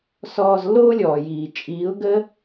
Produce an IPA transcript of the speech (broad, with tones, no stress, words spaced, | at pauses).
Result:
sɔː˧zlːoː˦lʲɔː˨jiː˨ t͡ʃʼiː˨˦ʊ̯ɡəː˦